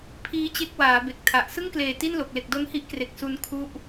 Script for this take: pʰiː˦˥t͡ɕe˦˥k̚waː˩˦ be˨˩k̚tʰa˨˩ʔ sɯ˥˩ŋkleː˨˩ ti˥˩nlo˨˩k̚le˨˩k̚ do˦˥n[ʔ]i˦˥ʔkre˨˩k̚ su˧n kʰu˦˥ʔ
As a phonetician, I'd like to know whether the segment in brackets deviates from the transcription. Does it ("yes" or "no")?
yes